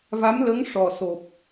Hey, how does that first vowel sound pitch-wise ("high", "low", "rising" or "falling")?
rising